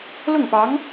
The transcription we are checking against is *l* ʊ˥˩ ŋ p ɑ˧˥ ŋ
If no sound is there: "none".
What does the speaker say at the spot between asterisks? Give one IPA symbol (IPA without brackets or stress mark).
l